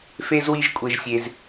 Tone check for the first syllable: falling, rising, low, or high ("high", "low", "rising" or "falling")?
high